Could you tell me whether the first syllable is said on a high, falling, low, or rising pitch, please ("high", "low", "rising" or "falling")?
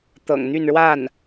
low